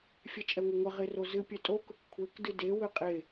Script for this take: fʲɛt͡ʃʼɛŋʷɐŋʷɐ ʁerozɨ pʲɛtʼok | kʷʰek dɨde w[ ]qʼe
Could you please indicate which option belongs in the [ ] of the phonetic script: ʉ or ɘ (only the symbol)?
ɘ